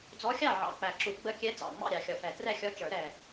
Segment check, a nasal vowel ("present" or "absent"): absent